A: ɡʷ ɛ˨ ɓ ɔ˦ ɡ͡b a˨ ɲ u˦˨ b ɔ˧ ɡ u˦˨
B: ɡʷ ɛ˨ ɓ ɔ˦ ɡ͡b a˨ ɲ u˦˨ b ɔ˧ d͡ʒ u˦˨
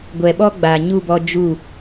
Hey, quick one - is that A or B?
B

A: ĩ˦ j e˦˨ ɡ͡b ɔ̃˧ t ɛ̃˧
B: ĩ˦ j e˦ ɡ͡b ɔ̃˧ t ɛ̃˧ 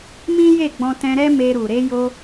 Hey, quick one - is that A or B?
A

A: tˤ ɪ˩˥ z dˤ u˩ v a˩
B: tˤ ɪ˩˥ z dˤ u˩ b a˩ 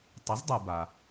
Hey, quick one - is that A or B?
B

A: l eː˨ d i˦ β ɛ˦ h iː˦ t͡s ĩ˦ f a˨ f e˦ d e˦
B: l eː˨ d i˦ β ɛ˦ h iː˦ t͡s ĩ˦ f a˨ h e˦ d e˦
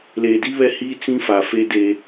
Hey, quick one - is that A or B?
A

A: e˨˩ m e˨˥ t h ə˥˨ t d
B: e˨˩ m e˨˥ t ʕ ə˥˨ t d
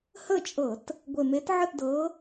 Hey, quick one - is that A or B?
B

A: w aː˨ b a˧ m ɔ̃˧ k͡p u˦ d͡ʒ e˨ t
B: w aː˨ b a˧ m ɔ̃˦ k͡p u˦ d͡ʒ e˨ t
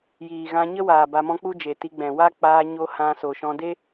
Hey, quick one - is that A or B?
B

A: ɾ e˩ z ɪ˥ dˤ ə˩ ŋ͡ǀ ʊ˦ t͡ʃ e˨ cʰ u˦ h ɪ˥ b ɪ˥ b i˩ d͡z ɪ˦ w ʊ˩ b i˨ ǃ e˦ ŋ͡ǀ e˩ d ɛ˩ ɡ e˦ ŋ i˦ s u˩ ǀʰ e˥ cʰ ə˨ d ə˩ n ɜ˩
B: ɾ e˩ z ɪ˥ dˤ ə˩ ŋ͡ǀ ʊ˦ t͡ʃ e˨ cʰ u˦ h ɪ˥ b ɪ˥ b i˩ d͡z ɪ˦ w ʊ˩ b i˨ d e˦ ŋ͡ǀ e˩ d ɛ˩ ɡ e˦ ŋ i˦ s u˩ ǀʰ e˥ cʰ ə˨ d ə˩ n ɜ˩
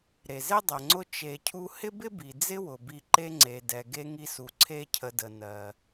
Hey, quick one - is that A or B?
A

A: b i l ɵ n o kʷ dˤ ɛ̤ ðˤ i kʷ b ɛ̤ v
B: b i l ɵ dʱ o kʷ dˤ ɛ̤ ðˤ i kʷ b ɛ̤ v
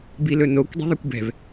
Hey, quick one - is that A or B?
A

